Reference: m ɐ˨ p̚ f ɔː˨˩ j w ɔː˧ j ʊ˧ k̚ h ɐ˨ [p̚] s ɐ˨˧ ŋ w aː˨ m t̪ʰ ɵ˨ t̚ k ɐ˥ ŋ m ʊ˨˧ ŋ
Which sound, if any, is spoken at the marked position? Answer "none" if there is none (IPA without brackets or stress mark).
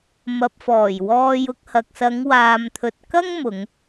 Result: k̚